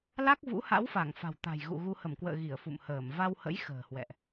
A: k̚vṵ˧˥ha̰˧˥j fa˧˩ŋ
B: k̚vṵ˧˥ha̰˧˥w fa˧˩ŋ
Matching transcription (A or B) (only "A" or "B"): B